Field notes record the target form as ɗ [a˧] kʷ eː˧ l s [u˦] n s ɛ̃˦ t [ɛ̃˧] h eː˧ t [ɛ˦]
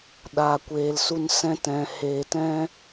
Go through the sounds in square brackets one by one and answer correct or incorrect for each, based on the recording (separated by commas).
incorrect, correct, correct, incorrect